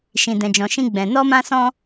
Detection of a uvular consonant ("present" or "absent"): absent